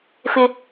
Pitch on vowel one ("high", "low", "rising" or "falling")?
high